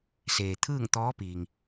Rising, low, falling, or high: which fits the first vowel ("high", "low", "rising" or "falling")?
low